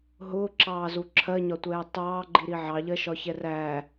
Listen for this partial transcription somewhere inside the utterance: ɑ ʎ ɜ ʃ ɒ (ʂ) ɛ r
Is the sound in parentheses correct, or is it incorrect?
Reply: incorrect